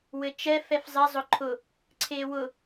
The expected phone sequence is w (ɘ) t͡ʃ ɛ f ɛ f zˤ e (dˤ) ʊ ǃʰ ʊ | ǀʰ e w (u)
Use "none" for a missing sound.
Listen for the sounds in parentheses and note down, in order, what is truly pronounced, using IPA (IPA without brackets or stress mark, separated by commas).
ɘ, zˤ, ʊ